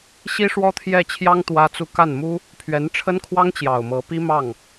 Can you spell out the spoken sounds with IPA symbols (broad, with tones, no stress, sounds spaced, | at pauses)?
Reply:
ɕ i˥ ʂ w ɔ˥ t̪ʰ j ɛ˥˩ t͡ɕʰ j ɑ˥ ŋ t̪ w ä˥ t͡s u˥ k a˥˩ n m u˥ | pʰ ɥ ɛ˧˥ n ʈ͡ʂʰ ə˥ n kʰ w ɑ˥ ŋ t͡ɕ j ɑ˨˩ ʊ̯ m ɤ˧˥ p i˥ m ɑ˥˩ ŋ